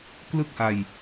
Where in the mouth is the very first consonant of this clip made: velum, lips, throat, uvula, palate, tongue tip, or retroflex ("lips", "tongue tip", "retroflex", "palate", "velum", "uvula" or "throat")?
velum